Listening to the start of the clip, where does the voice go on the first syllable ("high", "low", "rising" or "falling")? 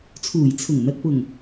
low